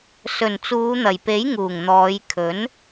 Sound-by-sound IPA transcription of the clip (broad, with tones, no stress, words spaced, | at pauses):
sɵ˨˩nt͡suː˨˧n̪ɐ˨˩jpe˨˥j ŋuː˨˩ŋn̪ɔː˨˧j kʰɵ˨˥n